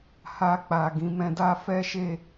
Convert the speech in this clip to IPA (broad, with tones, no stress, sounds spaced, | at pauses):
h a˧ k͡p a˨ ɡ ĩ˨˦ m ɛ̃˧ d a˦ f ɛ˦ ʃ e˦˨